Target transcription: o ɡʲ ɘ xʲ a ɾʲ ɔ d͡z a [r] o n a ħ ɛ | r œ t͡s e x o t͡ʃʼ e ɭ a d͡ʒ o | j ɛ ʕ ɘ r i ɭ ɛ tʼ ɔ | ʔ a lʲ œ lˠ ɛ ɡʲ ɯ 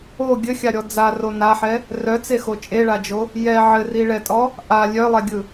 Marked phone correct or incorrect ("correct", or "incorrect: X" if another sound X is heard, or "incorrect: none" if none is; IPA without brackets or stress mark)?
correct